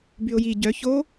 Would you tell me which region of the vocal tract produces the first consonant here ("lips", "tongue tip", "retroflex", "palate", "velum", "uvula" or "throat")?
lips